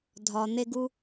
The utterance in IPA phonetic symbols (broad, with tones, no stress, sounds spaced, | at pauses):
dʱ ɒ˨ n̪ e˦ ɡ u˦